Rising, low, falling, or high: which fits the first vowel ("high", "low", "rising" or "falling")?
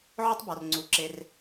high